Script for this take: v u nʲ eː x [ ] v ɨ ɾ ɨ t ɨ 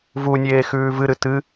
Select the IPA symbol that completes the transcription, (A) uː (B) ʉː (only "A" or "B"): B